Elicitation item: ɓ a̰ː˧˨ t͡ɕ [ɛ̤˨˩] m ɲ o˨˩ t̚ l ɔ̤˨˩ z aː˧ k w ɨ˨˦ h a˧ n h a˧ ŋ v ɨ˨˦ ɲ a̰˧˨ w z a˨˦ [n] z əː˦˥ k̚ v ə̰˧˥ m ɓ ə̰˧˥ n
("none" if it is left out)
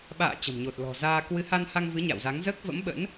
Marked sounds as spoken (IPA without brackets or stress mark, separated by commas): ə̤˨˩, ŋ